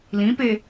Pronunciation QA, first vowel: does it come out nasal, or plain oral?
nasal